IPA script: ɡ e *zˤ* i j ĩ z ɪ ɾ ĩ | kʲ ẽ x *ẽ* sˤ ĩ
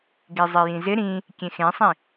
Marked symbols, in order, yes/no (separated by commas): yes, yes